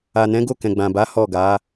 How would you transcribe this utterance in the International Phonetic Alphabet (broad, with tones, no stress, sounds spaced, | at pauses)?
a˨ n ɛ̃˨˦ ɡ o˦˨ k ɛ̃˨ ɡ͡b ã˨ b a˨˦ h ɔ˦˨ ɡ a˨˦